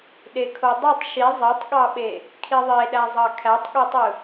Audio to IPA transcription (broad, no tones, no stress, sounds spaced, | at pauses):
ɗ e kʰ o dˤ ɯ tˤ ʃ i zˤ e tˤ ɠ ɑ ɓ e | kʰ i ðˤ e ɗ æ zˤ ɑ kʰ æ tˤ ɠ e tˤ ɯ